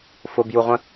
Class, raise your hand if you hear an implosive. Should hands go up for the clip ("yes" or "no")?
no